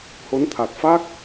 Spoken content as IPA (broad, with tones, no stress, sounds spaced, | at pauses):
h o˨˦ n t̪ʰ a˨˩ t̚ f a˦˥ k̚